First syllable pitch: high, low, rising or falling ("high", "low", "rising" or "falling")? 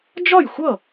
falling